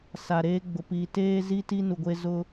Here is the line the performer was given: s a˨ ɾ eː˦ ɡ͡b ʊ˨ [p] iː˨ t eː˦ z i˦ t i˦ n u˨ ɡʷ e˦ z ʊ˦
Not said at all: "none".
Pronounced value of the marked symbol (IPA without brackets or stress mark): p